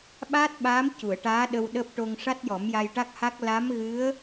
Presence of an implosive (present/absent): present